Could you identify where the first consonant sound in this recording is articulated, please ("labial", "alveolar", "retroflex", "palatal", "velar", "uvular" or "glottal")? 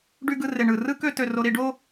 retroflex